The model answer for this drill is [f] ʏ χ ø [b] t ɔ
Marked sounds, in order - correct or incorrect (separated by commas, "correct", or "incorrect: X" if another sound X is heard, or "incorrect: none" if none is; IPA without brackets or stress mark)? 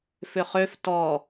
correct, incorrect: f